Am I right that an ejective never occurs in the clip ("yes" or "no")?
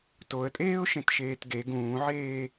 no